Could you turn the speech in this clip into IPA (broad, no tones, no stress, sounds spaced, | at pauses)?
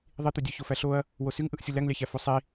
ðˤ i t̪ ø dʲ ø ç o f æ ɬ o ɐ̯ | w o s y ŋ ʔ ɯ ʔ sʲ u l æ ŋ lʲ ɑ ç æ f o sˤ i